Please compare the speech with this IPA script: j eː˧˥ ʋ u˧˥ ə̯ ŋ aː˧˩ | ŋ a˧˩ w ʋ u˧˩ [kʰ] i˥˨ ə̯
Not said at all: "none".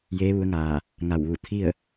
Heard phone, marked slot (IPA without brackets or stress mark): t̪ʰ